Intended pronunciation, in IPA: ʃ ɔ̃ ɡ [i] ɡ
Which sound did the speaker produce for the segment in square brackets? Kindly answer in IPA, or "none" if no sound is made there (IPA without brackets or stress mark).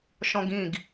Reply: ĩ